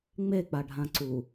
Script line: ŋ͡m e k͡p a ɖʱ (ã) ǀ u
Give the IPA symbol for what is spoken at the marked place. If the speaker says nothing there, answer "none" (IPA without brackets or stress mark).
ã